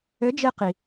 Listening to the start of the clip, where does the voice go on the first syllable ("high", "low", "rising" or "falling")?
rising